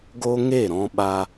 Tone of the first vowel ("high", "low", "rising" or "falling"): high